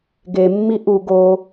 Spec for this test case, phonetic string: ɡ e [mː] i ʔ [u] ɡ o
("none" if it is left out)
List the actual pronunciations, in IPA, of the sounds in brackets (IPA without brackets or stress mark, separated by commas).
mː, u